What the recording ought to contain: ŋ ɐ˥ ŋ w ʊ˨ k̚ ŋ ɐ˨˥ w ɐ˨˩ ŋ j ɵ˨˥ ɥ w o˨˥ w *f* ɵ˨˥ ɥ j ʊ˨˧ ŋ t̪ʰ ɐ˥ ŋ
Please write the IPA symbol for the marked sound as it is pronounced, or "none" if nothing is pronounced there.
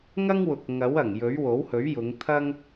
h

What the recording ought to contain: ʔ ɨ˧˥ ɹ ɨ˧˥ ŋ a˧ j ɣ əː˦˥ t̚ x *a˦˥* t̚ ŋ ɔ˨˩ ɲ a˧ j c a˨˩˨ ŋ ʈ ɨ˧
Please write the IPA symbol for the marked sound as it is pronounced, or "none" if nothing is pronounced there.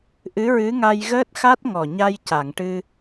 a˦˥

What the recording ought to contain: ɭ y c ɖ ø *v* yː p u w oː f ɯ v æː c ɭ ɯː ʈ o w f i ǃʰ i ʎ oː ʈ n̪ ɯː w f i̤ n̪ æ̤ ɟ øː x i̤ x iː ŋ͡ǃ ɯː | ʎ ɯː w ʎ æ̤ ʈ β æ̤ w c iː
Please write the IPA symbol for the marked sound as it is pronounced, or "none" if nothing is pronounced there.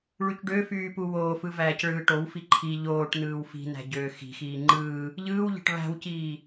f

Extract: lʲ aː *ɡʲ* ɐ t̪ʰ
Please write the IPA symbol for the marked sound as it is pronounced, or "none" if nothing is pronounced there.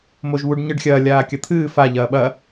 kʲ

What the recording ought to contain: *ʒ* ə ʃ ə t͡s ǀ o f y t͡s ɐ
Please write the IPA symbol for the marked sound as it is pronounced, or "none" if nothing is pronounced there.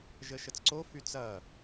ʒ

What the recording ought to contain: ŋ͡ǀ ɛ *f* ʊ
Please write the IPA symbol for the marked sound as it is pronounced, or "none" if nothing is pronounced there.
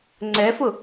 f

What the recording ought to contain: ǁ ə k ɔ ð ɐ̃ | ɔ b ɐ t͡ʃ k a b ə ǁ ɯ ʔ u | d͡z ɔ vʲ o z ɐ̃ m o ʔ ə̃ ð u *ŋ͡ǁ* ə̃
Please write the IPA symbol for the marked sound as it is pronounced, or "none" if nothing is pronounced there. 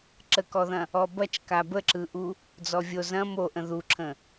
ǁʰ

